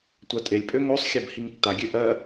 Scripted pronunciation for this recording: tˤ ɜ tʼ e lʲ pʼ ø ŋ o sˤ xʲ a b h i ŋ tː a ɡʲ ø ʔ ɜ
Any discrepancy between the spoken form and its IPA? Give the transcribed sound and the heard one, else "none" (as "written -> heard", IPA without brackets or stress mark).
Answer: tˤ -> tʷ